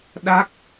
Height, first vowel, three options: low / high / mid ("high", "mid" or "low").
low